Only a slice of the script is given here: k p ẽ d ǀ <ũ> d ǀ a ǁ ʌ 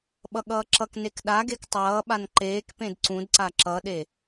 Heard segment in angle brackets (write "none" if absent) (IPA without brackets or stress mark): ũ